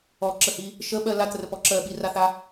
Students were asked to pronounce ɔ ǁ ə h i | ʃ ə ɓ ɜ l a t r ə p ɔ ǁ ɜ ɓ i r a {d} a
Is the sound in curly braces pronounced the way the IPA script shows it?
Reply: no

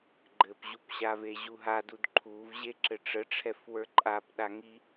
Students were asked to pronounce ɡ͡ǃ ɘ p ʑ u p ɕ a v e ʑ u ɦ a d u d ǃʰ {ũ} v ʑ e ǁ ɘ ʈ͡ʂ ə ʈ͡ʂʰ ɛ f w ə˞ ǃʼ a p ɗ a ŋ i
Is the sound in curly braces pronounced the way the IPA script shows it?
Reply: no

